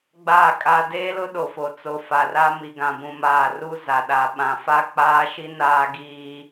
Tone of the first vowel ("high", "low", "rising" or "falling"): falling